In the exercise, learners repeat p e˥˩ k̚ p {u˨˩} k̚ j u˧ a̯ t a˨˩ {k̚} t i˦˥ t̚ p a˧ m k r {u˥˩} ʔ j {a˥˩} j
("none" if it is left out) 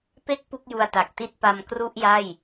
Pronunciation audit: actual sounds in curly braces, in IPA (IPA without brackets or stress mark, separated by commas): u˥˩, k̚, u˥˩, a˥˩